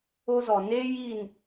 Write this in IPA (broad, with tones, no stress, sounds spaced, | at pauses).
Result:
o˦ z ɔ˨ n e˦ j i˦˨ n